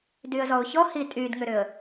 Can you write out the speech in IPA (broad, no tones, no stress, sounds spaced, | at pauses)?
d y ə̯ z ɔ ʊ̯ ç ɔ h i tʼ y d ŋ ʏ ɾ ʏ ə̯